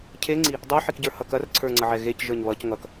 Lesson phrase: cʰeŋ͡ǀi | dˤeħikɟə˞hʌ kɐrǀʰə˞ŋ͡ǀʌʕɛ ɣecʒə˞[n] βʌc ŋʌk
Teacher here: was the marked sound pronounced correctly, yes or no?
no